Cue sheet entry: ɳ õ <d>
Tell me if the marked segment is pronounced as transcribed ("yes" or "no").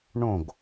no